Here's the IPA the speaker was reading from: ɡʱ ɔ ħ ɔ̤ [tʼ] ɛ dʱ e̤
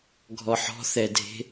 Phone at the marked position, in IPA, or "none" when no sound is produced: θ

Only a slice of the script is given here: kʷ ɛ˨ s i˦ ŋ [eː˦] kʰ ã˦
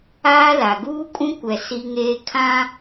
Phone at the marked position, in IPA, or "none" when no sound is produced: eː˦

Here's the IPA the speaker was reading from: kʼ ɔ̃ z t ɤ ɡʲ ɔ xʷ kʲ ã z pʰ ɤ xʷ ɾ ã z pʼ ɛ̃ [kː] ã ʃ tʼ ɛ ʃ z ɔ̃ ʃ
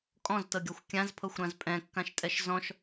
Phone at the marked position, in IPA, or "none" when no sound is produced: kː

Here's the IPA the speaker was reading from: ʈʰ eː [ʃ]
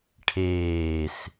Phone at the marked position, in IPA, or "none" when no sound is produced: s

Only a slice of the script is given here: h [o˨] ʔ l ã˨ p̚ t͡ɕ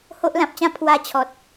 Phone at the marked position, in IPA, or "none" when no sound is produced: o˦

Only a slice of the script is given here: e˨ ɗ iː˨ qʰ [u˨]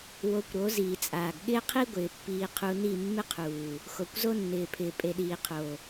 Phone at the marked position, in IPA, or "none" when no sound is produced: o˨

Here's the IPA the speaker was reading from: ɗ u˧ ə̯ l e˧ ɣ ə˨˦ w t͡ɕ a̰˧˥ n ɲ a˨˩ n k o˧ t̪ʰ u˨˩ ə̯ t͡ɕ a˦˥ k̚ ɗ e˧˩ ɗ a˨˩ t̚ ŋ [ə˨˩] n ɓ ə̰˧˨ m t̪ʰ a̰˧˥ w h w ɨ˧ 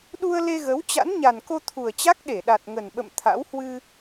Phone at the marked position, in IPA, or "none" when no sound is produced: ə˨˩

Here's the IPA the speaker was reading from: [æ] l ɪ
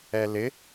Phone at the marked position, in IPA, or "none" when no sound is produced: ɛ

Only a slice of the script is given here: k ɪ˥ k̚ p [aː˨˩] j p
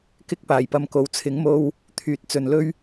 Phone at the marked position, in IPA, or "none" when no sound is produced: aː˨˩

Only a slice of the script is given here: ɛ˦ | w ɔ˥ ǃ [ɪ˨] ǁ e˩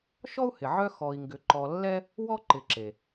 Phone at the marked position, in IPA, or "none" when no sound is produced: ɪ˨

